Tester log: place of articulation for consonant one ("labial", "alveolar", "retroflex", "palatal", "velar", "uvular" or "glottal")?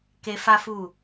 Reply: velar